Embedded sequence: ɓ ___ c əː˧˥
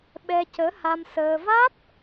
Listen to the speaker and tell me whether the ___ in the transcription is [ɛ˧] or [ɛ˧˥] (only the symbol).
ɛ˧